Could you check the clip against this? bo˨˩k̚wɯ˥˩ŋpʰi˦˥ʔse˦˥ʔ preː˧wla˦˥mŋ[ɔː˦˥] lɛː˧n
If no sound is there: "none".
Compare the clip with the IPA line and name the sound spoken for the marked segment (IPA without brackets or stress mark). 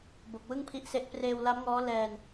ɔː˦˥